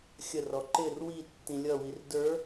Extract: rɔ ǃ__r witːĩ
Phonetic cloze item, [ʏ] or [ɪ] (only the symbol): ɪ